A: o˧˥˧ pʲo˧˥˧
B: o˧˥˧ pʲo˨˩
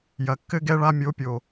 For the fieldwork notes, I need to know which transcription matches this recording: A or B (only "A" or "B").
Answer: B